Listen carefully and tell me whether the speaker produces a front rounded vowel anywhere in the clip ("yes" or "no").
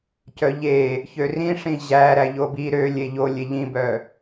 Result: yes